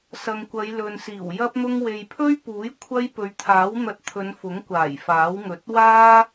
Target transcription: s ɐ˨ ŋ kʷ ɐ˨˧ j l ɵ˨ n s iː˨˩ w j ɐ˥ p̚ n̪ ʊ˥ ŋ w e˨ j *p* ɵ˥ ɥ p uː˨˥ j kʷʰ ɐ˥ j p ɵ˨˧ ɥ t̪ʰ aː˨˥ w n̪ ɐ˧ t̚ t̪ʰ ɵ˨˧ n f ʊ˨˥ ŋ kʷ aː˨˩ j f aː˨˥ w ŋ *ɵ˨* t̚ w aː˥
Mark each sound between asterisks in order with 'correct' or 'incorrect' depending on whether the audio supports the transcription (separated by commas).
incorrect, incorrect